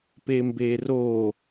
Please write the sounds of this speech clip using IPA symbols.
p e m b e r o

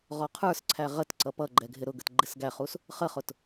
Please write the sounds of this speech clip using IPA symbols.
ʁ ɔ qʰ ə˞ s ǀʰ æ ʁ ə t ǀ ʌ p ʌ ɡ͡ǃ ɛ ɡʱ ɪ ɾ ʊ ɡ ə t ɡ͡ǃ ɪ s ɡ æ χ u s | χ ə χ ʊ t

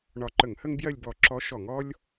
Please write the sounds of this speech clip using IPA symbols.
ɳ ɒ˧˩ ǃ ə˧˩˧ ŋ h ə˥ ŋ b j ɜ˥˧ lʲ b ɔ˧˩ ǁ ɔ˧˥ ʃ ɔ˧˩˧ ŋ ɔ˥ lʲ

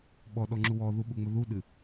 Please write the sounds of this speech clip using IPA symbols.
ɓ ɔ ɗ ɔ ŋ͡ǁ u w ɔ ð u ɓ u ŋ͡m ə ð u ɗ ɨ

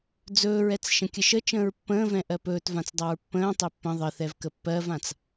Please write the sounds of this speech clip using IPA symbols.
d͡z ɵː ɹ ɛ t͡s ʃ ə̃ kʲ ə ʃ ə t͡ʃ ə̃ː ɹ pː ə̃ː v ɛ̃ ʔ ɜ p ɵː t v ã t͡s dˤ a ɹ pː ə̃ː tˤ ɘ pː ə̃ ðˤ ə θ ɛ v k ə pː ɜ v ã t͡s

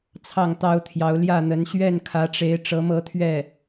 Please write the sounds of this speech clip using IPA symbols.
t͡sʰ ɑ˥˩ ŋ t̪ ɑ˥ ʊ̯ t̪ʰ j ɑ˧˥ ʊ̯ l j ä˥˩ n̪ ə˧˥ n ɕ ɥ ɛ˥˩ n kʰ ä˧˥ ʈ͡ʂ e˧˥ ɪ̯ ʈ͡ʂ ɤ˧˥ m ɤ˥˧ t̪ʰ ɥ ɛ˥˩

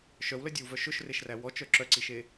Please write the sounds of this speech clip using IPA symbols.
ʃ œ w l œ dʲ ɔ w v œ ʃ ɵ ʃ r e ʃ r æ w ɔ t͡ʃ œ ǁ œ ǀ i ʃ e

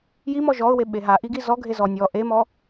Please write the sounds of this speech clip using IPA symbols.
j i m ɔ ʒ ɔ ʊ̯ w e ɓ e ɦ a ʔ i ɡ i z ɔ ɡʱ e z ɔ nʲ ɔ ʔ e m ɔ

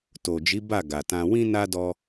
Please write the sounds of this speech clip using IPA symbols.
t o˨ d͡ʒ i˨˦ b a˦˨ ɡ a˨ t ã˧ w ĩ˦ n a˦ d ɔ˦

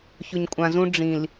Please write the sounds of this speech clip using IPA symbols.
ç ʊ˨ ɲ kʷʼ ã˨ z ũ˦ ɖ͡ʐ ĩ˨ l

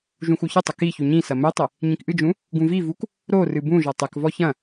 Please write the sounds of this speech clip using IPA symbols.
ʒ ũ x u ç ɘ tˤ ɘ k i ç u ɲ ĩ s ɐ m ɘ tˤ ɘ | ɲ ĩ k ʔ ɨ d͡ʒ ũ | ɡ ũ v i v u k | ɾ o r ɨ b ũ ʒ ɔ tˤ ɘ k v ɔ ç ɐ̃

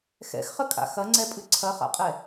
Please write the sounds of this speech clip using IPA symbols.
x ɛ̰ x χ ə kʼ a̰ x ɐ ŋ͡ǀ ɛ pʼ ɨ ǀʰ ɐ χ a̰ qʼ ɛ

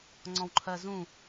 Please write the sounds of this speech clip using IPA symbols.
ŋ͡ǀ ɔ̃ w ǃʰ ɜ z ũ

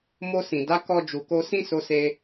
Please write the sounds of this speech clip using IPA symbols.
m o˧ s ĩ˨ d a˨˦ k ɔ˧ d͡ʒ u˨ k o˧ s ĩ˦ s o˦ s e˦

